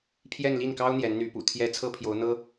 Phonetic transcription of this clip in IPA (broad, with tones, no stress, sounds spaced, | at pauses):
pʰ j ɛ˥˧ n l i˥˩ n k ɑ˥ ʊ̯ n̪ j ɛ˧˥ n n̪ y˧˥ p ṵ˨˩ t̪ʰ j ɛ˥ t͡sʰ ɤ˥ pʰ j o˧˥ ʊ̯ n̪ ɤ˥